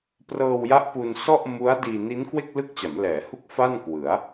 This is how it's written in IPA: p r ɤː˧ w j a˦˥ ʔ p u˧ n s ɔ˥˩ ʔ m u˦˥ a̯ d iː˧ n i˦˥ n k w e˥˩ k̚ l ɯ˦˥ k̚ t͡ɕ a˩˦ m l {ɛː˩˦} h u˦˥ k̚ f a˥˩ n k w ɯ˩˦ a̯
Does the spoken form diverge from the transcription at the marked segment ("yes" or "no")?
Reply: no